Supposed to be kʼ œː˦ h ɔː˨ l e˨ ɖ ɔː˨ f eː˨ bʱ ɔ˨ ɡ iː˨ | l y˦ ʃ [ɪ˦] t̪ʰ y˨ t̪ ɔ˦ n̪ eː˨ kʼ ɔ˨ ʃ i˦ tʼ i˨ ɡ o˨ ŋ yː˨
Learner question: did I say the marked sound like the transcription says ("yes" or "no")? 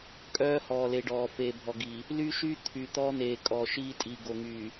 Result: no